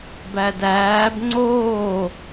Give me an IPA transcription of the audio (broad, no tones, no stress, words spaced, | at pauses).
bædæːb ŋ͡ǀoː